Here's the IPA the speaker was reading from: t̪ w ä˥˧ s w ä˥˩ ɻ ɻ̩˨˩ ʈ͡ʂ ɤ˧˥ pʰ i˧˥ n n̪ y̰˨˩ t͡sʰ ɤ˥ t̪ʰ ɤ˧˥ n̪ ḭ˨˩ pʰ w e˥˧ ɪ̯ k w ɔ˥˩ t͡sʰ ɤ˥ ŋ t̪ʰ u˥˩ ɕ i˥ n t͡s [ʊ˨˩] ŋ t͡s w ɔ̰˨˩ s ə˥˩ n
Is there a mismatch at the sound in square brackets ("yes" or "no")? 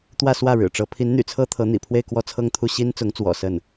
yes